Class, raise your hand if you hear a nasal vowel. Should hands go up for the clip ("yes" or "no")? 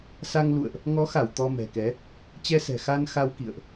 no